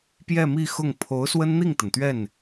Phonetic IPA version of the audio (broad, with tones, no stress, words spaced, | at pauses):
pjɛ˥˧mi˥˧ xʊ˥˩ŋ pʰo˧˥ʊ̯swə˥nn̪i˥˩ŋt̪ə˩n t̪ɥɛ˥˩n